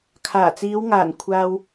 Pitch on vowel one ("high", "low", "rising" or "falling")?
low